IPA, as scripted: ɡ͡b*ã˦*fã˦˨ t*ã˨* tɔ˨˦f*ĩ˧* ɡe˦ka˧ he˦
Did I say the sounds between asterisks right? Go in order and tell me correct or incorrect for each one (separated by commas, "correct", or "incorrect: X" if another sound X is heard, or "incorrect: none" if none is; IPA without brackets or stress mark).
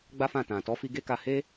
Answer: incorrect: a˦, correct, incorrect: i˧